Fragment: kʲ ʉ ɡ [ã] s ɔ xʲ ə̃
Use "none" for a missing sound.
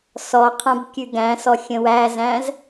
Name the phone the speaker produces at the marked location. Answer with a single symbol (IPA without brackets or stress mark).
æ̃